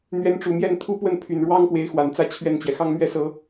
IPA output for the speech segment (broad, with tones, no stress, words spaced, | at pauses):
n̪ɥɛ˧˥nʈ͡ʂu˨˩mjɛ˥˩n t̪ʰu˥pwə˥˩n pʰy˨˩nɻwɑ˥ŋpwe˧˥ɪ̯ xwa˨˩n t͡sä˥˧ t͡ɕʰɥɛ˥˩nt͡ɕjɛ˩ xɑ˥ŋmɥɛ˥sɤ˧˥